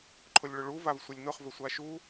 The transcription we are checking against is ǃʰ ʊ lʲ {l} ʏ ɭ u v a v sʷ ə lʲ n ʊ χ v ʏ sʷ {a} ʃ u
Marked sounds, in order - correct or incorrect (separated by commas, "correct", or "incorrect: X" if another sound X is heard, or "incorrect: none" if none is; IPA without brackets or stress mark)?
incorrect: ɭ, correct